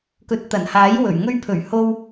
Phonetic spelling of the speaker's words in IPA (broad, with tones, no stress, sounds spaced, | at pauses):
k ɵ˨ t̚ t̪ ɐ˨˩ n h aː˨˥ j w ɵ˨˩ ɥ ŋ ɵ˧ ɥ pʰ ɵ˨˩ ɥ h o˧ w